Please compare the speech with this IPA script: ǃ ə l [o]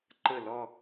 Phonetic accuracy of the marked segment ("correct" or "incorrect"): incorrect